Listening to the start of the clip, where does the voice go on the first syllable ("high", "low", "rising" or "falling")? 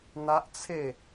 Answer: high